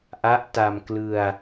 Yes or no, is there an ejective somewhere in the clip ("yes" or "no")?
no